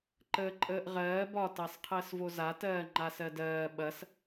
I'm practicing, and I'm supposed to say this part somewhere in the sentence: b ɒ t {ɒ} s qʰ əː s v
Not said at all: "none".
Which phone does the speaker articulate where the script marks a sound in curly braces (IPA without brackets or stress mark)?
ɑ